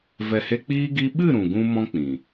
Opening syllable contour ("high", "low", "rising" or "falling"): low